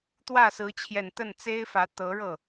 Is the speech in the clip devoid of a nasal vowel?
yes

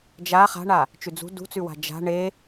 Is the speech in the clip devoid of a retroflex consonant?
no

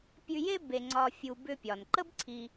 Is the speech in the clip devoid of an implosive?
yes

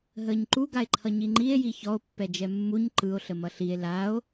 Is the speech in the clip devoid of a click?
no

